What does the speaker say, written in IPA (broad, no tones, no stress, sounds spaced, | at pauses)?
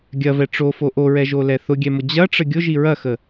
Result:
ɡʲ ɐ v ɛ ʈ͡ʂ o f o ʔ o ɹ ɛ ʒ o l ɛ θ ʊ ɡʲ ɛ m ʊ d͡ʑ ɐ ʈ͡ʂ ə ɡʲ ʊ ʒ i ɹ ɐ x ə